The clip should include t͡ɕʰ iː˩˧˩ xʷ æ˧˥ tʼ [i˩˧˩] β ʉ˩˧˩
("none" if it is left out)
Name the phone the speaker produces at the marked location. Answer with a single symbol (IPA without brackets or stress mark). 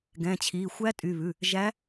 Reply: y˩˧˩